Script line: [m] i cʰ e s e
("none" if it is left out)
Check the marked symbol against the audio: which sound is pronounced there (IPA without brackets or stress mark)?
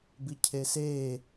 b